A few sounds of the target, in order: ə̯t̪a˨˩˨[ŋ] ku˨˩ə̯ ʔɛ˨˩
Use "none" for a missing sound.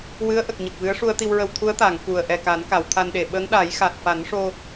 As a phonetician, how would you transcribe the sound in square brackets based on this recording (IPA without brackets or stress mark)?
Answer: ŋ